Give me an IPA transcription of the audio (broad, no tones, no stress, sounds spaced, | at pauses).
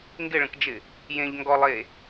ŋ ɡ ɪ ɭ ə̃ k d͡ʒ ɪ | j ẽ ʎ ŋ ɡ ɔ lˠ e